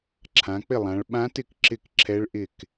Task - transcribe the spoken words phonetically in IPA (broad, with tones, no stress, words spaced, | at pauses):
ǁʰã˩˧k͡pɪ˥˩lˠã˩˧ɭ ɓã˧˥tɪ˥˩k ǁɪ˥˩k ǁʰɛ˧˥ɭʔɪ˥˩k